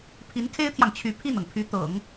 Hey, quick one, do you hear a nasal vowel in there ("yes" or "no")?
no